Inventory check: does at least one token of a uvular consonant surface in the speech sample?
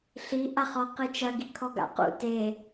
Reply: yes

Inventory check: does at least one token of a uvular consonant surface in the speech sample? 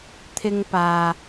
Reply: no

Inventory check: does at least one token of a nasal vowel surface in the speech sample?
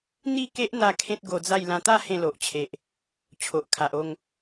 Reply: yes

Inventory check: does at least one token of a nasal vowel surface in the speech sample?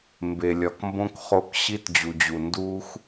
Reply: yes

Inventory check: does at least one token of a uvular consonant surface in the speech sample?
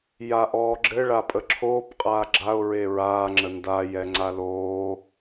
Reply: yes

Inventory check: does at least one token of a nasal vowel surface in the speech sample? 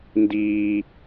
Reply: no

